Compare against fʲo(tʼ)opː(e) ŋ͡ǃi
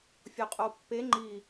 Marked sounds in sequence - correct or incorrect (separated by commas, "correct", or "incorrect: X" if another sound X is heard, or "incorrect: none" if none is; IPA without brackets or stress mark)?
incorrect: qʼ, correct